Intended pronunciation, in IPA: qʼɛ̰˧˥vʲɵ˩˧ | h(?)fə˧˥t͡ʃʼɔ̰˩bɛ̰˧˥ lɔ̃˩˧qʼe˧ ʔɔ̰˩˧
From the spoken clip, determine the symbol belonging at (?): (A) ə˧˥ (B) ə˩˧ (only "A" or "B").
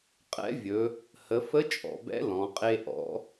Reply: B